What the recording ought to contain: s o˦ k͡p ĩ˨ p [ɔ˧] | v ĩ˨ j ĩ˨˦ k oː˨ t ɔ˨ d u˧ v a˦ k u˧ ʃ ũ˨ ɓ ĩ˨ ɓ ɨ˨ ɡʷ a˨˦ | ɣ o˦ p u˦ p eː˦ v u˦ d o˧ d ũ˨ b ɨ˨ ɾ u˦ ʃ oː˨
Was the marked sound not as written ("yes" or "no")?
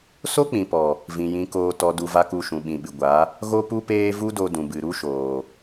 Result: yes